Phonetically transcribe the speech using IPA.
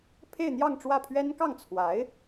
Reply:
pʰe˥˧ɪ̯n̪jɑ˥˧ŋʈ͡ʂwä˥˩pʰɥɛ˥n kɑ˥˩ŋt͡sʰwa˧˥ɪ̯

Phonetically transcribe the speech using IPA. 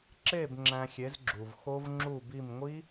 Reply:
ǁe˥˨b ŋ͡ǁæ̃˧xʲe˨˥zɡ͡ǁu˩v xo˦˥vŋ͡ǁu˥˨bi˥˨m ŋʷi˦˥

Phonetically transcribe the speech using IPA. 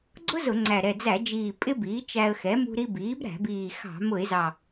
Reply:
ɡ͡ǀʊ˥ zʊ˧˩˧ŋ͡ǀæ˨˩ ɾɛ˨˩d͡zæ˧˩˧d͡ʒiː˨˩ pʼɪ˥biː˩˥t͡ʃæ˧ə̯xɛ˩˥ mṳ˧ɾi˧ biː˩˥bɾæ̤˧˩˧biː˨˩xɑ̤˧˩˧ mʊ˧˩˧ɪ̯zɑ˨˩

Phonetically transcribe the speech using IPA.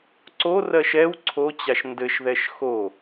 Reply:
ǀorɜʃ ɛw ǀʰot͡ɕaʃ ndɘʃðɛʃ xo

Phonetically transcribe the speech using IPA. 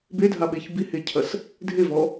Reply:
bedʱaɓeç bihecʰɐs | dʱevɔ

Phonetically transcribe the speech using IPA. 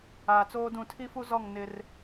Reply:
aː˨t͡soː˦dũ˦˨ tʰi˦fu˦zɔ˦˨ŋ nɪ˦r

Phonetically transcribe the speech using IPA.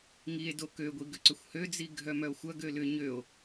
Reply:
ŋie̯do køɡʷi ɡʏǀʏxʷhød͡zi ɡʱœmœo̯xʷɐɡø lʏ ɲøo̯

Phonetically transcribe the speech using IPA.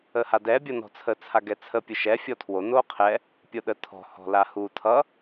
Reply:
əhadɛ bʲʌnɔ̤t͡sʰə t͡sʰaɡɛt͡sʰə pʲɯʃɛ fʲɔtʰwo noqʰɛ | pʲoɗə tʰɔ̤ hɔ̤lahu tʰʌ

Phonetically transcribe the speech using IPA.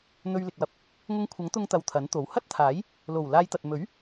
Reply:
n̪ɵ˧ɥlɪ˨k̚wɐ˧p̚ | ŋʊ˧ŋkʷʰɐ˨˥ŋ t̪ʊ˧ŋt̪ɐ˨w t̪ʰɐ˨˥nt̪o˨˥w hɐ˥t̚t̪ʰaː˨˥j | lo˨˩w laː˧jt̪ɐ˨t̚ mɵ˨˥ɥ

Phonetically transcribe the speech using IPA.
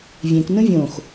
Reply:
vʲẽk nũvʲõx

